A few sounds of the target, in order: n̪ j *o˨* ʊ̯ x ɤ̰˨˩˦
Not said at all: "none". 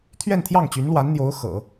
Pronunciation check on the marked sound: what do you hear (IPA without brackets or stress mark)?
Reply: o˧˥